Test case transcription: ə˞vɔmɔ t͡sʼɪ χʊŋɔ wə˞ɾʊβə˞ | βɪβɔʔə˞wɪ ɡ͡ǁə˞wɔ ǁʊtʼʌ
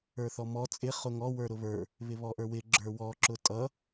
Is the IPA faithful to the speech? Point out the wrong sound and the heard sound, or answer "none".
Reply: v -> θ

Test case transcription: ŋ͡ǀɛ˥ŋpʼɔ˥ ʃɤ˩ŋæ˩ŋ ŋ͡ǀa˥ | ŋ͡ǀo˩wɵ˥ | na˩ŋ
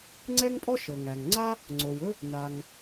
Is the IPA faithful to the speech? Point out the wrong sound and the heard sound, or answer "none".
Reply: none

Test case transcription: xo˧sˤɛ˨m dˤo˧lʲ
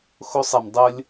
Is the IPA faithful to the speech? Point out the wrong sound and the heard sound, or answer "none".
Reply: none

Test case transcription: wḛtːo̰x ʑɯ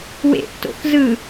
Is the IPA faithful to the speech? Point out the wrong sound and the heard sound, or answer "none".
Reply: ʑ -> z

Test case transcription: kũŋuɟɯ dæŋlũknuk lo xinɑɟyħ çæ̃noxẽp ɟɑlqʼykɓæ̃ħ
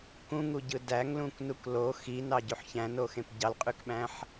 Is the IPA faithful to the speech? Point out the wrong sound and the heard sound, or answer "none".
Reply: none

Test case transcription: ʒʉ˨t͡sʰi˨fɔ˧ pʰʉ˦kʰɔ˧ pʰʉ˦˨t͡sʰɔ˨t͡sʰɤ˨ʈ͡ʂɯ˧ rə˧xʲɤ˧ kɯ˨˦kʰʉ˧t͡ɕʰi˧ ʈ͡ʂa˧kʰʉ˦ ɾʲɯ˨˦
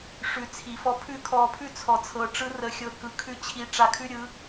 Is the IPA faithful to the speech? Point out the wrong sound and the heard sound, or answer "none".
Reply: ʒ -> ʂ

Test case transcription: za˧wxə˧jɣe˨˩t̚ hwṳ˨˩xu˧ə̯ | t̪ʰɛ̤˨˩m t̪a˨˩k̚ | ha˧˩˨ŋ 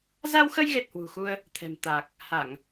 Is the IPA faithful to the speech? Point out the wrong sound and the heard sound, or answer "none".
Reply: none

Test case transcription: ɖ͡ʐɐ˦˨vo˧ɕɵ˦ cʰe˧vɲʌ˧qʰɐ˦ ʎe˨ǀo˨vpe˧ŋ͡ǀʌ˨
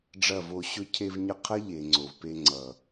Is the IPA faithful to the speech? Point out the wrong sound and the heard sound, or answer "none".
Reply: ǀ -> ŋ͡ǀ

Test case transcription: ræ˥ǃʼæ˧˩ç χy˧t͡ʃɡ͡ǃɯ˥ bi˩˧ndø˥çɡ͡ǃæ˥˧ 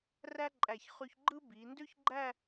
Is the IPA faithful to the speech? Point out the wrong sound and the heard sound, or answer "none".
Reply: t͡ʃ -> ç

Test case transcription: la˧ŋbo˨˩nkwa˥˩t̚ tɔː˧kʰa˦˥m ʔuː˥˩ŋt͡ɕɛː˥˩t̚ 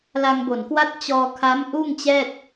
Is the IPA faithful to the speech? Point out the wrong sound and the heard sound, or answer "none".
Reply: t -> t͡ɕ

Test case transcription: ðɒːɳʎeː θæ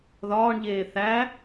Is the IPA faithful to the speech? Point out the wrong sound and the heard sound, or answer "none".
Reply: none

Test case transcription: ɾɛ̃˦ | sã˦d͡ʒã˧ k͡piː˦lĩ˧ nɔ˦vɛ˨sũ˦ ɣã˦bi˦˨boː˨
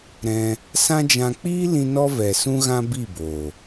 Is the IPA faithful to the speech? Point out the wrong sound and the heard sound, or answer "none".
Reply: ɛ̃˦ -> ɛ̃˧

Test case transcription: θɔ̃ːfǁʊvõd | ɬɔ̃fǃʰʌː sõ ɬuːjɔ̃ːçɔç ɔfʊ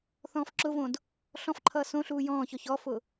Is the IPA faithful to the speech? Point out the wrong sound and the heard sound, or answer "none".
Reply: none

